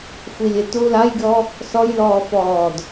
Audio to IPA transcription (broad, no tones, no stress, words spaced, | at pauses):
xʷilʲetu lajɡʲɔ | sɔjlɔːfɔːd